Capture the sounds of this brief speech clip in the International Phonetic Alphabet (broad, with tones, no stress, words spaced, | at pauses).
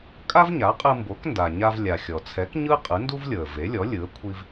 kʼa˥vɲa˩˥qʼɯ˧ mbo˩˥knda˩ɲa˧v lʲa˩xʲɔ˩t͡sʰɛ˩˥k ɲɯ˥ qʼɯ˩˥ndu˥vlʲɤ˩ə̯ ve˩˥lʲɔ˩˥ lʲɯ˩˥ə̯ kʷʰi˧v